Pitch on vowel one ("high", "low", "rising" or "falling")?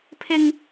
high